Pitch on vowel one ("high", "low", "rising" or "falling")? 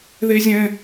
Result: high